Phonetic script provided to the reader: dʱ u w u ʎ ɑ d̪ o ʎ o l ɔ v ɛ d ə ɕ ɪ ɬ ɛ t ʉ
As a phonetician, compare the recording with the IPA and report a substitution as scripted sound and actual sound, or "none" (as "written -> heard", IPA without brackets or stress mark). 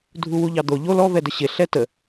ʉ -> ə